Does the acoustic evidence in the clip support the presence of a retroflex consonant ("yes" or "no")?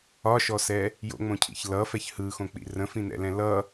no